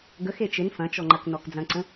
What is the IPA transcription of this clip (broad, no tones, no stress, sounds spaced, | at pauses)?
ɡ ə x e t͡ʃ ɪ n f ɐ̃ t͡ʃ ɔ ŋ͡ǃ ɐ k n ɔ k d͡z ɐ̃ ǀ ə̃